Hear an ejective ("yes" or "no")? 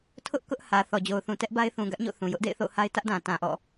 no